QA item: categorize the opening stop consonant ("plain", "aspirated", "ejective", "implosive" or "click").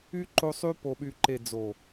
click